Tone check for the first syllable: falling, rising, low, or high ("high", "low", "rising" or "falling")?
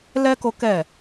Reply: high